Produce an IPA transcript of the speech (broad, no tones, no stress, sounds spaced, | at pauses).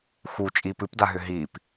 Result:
x u t͡ʃʼ iː p ɨ p d a ɦ ʏ ɦ iː p